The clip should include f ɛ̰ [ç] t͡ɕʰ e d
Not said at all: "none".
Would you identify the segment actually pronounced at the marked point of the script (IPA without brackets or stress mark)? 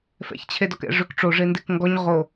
ç